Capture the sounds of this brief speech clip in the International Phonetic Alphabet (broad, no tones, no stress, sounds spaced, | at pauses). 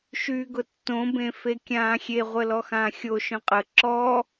ʃ yː ɡ ʊ tː õ b ẽ f e kʲ ãː xʲ e ʁʷ ə l ɔ x ãː xʲ o ʃ œ̃ qʼ ə ǁ ɔ